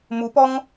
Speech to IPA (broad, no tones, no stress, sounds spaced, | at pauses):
m u p ɔ ŋ